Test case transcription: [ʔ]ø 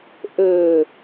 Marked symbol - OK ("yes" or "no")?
yes